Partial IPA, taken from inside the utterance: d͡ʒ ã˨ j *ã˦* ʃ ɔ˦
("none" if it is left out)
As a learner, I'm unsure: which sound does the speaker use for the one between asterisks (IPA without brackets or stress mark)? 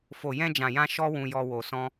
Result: ã˧